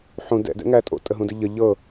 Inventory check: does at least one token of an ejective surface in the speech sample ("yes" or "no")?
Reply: yes